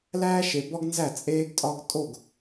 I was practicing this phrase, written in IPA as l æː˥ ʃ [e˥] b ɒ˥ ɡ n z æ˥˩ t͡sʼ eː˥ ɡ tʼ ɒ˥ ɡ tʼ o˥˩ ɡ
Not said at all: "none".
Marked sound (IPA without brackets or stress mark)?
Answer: e˩